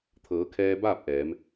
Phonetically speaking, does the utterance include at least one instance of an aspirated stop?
yes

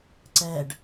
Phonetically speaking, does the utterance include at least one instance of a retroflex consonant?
yes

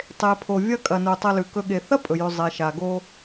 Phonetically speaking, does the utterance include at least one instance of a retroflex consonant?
no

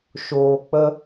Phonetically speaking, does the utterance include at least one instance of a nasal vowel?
no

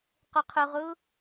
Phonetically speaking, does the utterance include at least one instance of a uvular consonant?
yes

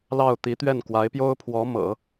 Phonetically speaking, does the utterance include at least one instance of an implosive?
no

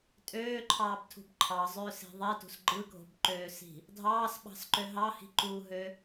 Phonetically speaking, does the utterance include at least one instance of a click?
yes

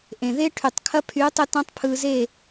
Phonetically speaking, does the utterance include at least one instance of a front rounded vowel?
yes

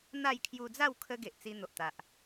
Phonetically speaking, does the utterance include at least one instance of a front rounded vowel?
no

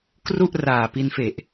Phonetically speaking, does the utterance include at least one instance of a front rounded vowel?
no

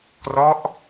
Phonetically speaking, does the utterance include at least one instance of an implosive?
no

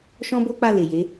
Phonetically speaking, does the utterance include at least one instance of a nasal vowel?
yes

